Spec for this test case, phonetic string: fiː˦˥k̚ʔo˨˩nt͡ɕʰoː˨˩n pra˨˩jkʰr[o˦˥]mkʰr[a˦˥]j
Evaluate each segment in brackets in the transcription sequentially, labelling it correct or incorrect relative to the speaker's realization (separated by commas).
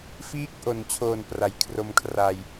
incorrect, incorrect